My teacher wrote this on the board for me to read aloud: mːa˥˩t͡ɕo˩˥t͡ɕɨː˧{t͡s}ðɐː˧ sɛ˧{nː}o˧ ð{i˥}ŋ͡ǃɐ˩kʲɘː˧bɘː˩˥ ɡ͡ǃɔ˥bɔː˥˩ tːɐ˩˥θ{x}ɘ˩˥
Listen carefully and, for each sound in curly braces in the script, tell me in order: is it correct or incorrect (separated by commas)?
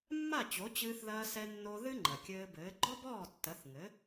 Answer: incorrect, correct, incorrect, incorrect